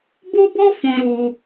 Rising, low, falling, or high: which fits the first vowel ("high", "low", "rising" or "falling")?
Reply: high